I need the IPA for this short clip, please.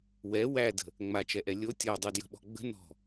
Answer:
wɛ wædə̤ | ŋ͡mat͡ʃɛʔɛ lʲo tʲɔdˤudjə̤ɓɔ̤ ɡ͡bə̤ nɔ̤

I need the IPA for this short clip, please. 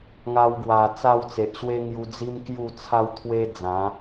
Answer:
ŋa˧wɡwa˨˩ t͡sa˥˧wt͡se˨ʔɕwe˦ ŋju˧d͡zi˦m kju˥˧t͡sʰa˦wt̪ʰwe˦ d͡zã˨˦

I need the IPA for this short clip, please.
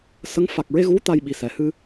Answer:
sə˧˥ŋ fa˨˩k̚ɹe˧ ɣu˧˥ t̪a˧jɓi˨˩ sɛ˨˩˨hɨ˧

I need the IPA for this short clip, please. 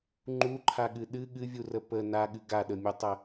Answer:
ŋ͡ǃuǃʰaɠɨ ɗɨ ɠɨvʲurə pə naɠɨ ɡaɗəmʲutˤə

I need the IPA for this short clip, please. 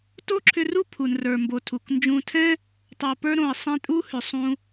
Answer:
to˦ǁʰʏ˧ru˦ pʰu˨nrə˞˨ mbo˨ tʰu˨k nd͡ʒũ˧ tʰɛ̃˦ | tˤo˨pə˞˧ɾõ˨ə̯ sˤɛ̃˧tʼu˦hʏ˨ sˤũ˦

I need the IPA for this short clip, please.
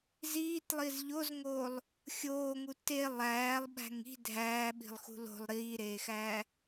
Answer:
ziːtlˠiz ʎozŋoːlˠ | xʲoːŋu te lˠæːlˠɓæ̤ŋ i̤ dʱæːɓi̤lˠxṳ lo̤lˠ ɾiːɾeːxæː

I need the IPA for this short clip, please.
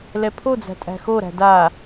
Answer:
lɛpʰod͡zæ̤ tʼæ̤xoɾæ̤ da

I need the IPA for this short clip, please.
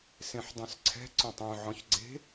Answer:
sẽħdˤœ̃sǀʰɛ̤ ǀœ̃tˤœ̃ ʕɔ̃çɡ͡ǀe̤

